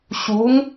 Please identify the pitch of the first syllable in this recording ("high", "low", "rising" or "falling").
rising